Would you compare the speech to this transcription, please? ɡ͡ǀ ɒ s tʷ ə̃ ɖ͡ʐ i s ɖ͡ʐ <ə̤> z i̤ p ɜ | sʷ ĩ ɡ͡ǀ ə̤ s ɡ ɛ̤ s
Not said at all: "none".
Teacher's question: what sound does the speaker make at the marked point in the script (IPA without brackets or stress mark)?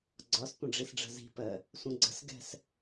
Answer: ə̤